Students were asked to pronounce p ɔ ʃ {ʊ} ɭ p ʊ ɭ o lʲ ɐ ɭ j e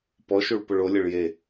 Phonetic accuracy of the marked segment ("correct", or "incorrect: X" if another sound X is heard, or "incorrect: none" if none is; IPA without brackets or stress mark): incorrect: u